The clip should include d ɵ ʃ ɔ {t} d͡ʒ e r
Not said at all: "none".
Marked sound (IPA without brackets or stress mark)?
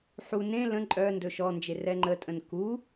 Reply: n